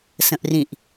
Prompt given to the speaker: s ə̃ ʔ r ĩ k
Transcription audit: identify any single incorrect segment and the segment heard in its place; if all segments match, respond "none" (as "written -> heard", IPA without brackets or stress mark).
k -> ʔ